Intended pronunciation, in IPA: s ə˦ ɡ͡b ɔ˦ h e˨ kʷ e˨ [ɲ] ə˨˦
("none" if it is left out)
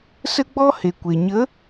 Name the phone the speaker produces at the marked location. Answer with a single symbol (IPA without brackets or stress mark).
ɲ